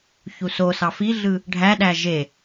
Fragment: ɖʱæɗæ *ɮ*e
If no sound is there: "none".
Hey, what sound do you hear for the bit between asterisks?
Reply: ʒ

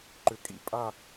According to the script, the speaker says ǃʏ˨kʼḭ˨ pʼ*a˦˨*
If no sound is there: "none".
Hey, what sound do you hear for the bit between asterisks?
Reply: a˦˨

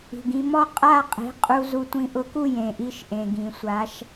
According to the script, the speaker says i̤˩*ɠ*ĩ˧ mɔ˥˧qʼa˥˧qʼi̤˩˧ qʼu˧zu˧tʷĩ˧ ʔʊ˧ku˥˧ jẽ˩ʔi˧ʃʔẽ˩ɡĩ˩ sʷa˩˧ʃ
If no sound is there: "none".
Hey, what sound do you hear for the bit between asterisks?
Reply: ɡ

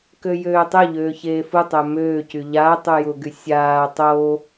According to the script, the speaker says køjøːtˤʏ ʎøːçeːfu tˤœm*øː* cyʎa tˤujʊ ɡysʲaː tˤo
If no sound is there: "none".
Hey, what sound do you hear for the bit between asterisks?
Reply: øː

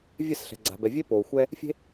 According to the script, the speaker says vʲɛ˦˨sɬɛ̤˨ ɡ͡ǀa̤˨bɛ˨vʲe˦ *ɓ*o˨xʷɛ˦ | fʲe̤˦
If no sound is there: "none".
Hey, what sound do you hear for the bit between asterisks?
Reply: p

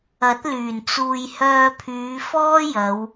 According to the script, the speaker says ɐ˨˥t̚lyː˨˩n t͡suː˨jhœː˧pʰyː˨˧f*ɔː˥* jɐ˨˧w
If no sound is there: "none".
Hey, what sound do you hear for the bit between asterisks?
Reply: ɔː˥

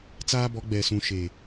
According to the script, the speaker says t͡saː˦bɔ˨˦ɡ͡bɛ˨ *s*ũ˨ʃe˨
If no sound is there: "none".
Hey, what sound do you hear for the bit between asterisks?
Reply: s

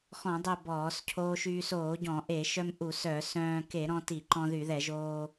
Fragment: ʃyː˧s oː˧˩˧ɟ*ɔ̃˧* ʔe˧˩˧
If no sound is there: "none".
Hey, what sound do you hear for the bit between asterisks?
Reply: ɔ̃˧˩˧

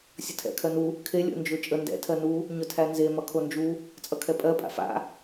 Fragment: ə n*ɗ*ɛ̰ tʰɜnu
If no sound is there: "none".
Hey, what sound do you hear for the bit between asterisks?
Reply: d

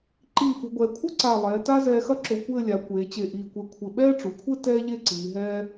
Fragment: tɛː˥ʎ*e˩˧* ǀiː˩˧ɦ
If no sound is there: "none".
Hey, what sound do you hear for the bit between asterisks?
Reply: e˥˧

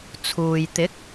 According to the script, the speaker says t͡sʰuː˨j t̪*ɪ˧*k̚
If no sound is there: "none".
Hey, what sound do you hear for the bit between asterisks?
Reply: ɪ˨˥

